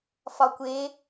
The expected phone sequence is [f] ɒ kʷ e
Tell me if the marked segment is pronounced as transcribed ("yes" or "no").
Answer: yes